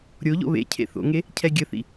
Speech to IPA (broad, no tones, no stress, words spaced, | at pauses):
ɾʲoʎo̰ βḛ cʰḛθo̰ŋe | cʰɛɡʲəθḭ